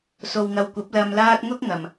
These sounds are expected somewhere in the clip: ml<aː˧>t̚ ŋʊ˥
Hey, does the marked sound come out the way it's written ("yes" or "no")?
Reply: yes